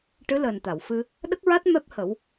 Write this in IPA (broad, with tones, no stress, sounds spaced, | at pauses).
ʈ ɨ˧˥ l əː˨˩ n t̪ a˨˩˨ w f ɨ˧ | ɗ ə˦˥ k̚ ɹ a˦˥ t̚ m ɛ˦˥ p̚ h ə˨˩˦ w